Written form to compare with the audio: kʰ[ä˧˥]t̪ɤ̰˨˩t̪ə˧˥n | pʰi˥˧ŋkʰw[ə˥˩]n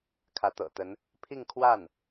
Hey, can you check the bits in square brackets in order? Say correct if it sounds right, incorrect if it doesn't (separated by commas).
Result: correct, incorrect